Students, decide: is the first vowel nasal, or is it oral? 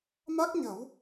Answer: oral